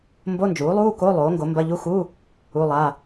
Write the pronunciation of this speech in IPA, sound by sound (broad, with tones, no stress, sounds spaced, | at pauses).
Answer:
m b o˧˥˧ n d͡ʒ uː˩˥ lˠ uː˧˥˧ k o˧˥˧ lˠ oː˩˥ ŋ ɡ o˩˥ m b ɐ˧˥˧ ʎ u˧˥˧ x u˧˥˧ | u˧˥˧ lˠ a˧˥˧